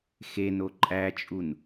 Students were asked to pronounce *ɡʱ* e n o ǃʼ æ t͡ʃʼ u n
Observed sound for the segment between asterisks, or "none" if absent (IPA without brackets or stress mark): x